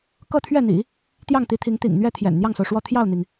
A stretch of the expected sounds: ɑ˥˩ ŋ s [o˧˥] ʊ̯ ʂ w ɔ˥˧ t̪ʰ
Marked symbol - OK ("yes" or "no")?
no